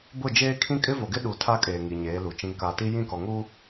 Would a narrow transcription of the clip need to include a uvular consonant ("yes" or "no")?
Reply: no